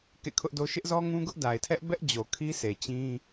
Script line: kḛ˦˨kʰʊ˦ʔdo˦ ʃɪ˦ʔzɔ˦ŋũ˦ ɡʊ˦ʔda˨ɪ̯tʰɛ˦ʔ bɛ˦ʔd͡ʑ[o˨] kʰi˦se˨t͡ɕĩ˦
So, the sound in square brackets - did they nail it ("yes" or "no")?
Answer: yes